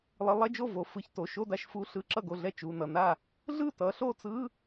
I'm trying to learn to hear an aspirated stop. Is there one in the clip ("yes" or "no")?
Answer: no